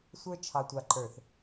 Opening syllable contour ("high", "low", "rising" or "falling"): high